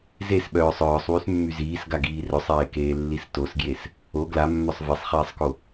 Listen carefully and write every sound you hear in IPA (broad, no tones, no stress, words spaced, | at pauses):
zesɓœːsˤ œːsˤ wysmːyziːs ɡaɡiːrœsˤeː keːlːistosɡjes | o ɡlamːœsˤ vesˤχiːsˤko